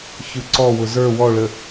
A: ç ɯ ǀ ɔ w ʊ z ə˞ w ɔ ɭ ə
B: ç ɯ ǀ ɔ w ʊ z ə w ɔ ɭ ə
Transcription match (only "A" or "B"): A